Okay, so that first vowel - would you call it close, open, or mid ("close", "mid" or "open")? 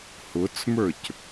close